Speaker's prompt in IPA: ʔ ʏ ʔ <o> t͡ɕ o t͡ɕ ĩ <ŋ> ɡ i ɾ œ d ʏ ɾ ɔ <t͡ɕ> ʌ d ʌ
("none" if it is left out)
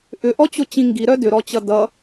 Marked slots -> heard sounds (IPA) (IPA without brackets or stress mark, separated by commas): ɔ, ŋ, t͡ɕ